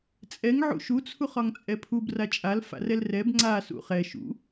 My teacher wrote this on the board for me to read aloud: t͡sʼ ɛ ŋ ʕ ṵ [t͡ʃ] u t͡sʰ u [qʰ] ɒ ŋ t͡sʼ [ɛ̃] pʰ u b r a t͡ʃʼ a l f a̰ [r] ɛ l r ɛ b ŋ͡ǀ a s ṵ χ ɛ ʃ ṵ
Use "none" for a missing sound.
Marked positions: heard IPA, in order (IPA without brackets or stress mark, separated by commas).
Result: ʃ, χ, ɛ, r